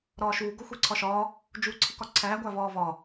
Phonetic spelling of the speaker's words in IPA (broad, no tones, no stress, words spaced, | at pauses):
ɾɒːʃuː ɡoxʷiǀʰɒʃɒː | d͡ʒuːǀʰikɒǀʰæː ɡʷævɒːvɒ